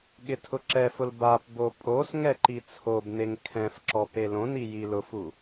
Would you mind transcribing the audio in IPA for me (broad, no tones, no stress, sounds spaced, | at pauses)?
ɠ ɪ tʰ ʊ ǁ ɛ f ʊ l b a p b o pʼ o s ŋ ɛ ǃ i t͡sʰ o b n e ŋ kʰ ɛ̃ f ǁ ɔ p e l õ n i j i l ʊ f u